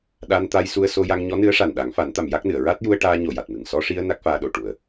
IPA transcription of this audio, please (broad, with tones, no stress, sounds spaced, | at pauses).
ɗ a˧ n t̪ a˧ j s u˧ ə̯ s o˧ j a˧ ŋ ɲ ɔ˧˥ n ɨ˧˥ ə̯ ʂ a˨˩ n ɗ a˨˩˦ ŋ f a˨˩˦ n t̪ a˨˩˨ m j a˦˥ k̚ n ɨ˨˩˨ ə̯ ɹ a˦˥ t̚ j u˧ ə̯ ʈ aː˧ ɲ o˨˩ j a˨˩ t̚ m ɨ˨˩ ŋ s ɔ˧ ʂ i˧ ə̯ n a˦˥ k̚ f aː˧ ɗ o˨˩ ʈ u˨˩ ə̯